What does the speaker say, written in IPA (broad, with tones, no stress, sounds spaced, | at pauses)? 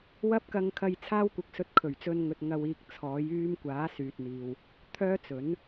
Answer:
w ɐ˥ p̚ k ɐ˧ ŋ kʰ ɐ˧ j t͡sʰ aː˥ w kʷ ɪ˨˥ k̚ s ɵ˧ t̚ kʰ ɵ˨˩ ɥ t͡s ɵ˧ n ŋ ɵ˧ t̚ ŋ ɐ˧ w iː˧ k̚ t͡sʰ ɔː˨˥ j yː˥ m kʷ aː˨˥ s yː˨ t̚ n̪ iː˨ w | t̪ʰ œː˥ t͡s ɵ˨˥ n